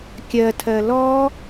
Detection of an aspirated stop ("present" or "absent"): present